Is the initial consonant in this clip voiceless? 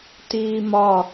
yes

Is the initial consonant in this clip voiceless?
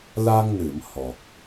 no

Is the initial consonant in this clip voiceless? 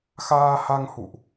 yes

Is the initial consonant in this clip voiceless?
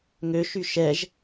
no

